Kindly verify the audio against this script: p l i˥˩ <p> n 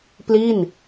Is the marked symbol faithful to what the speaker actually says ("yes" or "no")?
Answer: no